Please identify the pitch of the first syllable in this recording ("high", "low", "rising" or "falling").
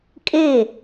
falling